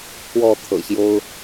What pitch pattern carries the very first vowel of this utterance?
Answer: falling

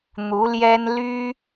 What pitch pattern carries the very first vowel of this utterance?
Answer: rising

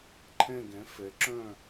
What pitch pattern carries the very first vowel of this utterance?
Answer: falling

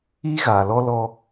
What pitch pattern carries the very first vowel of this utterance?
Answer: high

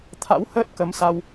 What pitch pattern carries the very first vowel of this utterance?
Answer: rising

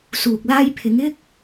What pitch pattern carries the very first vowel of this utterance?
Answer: low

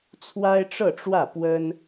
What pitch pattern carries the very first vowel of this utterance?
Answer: high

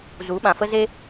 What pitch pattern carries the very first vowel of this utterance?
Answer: rising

